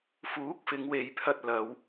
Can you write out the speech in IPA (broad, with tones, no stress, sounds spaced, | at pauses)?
f uː˨˥ k̚ f ɪ˨˧ ŋ w e˨ j pʰ ɐ˧ t̚ l ɐ˨˧ w